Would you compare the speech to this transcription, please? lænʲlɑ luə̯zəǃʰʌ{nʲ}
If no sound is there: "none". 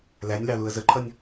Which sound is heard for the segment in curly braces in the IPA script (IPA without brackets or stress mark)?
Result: nʲ